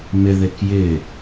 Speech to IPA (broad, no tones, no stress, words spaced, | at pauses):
mɪ ðekjɪ